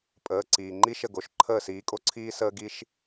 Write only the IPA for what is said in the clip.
pʼ əː˩˧˩ ǀ iː˩ ŋ͡ǃ i˥ ʃ ə˥˩ ɡ o˩˧˩ ʃ ǃʰ əː˥˩ s iː˨˦ kʼ o˥ ǀʰ iː˥ s əː˥ ɡ i˥ ʃ

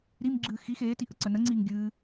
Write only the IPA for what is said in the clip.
ɾ i m ɡ͡ǁ ɨː x i x eː t i ʔ ə ǀ ə n ə ŋ͡ǀ iː ŋ ɡʲ ɨː

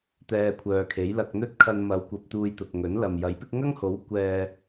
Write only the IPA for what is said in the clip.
t̪ ɛː˧ kʷʰ œː˨ kʰ e˨˥ j l ɐ˧ k̚ n̪ ɵ˥ t̚ kʰ ɐ˧ n m ɐ˨˧ w kʷ ɐ˧ p̚ t̪ uː˧ j t̪ ʊ˨ k̚ ŋ ɵ˨˥ n l ɐ˨ m j ɐ˨˥ j p ɪ˥ k̚ ŋ ɐ˥ ŋ h o˨˥ w kʷ ɛː˧

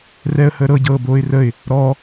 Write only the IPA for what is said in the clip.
r ɛ ə̯ h əː ɾ ɤ ɟ ɤː b oː ɪ̯ r ə ɪ̯ | ɾ ɔ

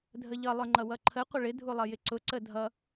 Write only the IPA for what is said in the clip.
dʱ ə ʎ ʌ lˠ ʊ ŋ͡ǃ ʌ w ʌ ǃʰ ə qʷ ə ɭ ɪ dʱ u lˠ ʌ j ɪ ǀ ʊ ǀ ə dʱ ʌ

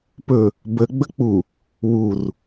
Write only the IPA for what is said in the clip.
p ɵ | b ə ɡ͡b ə k͡p u | w u r

